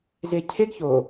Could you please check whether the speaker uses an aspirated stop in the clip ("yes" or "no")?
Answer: yes